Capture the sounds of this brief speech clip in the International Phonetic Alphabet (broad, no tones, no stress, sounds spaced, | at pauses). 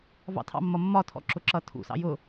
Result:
v ɑ̰ tʰ ɑ̰ mː ʌ mː ɒ tʰ ɔ̰ ǁ ʊ ǁ ʌ tʰ ṵ s ɑ̰ j ʊ